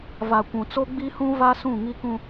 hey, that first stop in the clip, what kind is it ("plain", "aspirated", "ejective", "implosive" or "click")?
plain